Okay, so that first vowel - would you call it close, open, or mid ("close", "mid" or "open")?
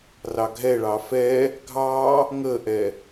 open